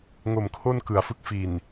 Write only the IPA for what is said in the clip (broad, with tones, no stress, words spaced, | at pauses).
ŋo˨˩mkʰo˥˩nkɯ˩˦a̯fɯ˦˥k̚ fi˨˩n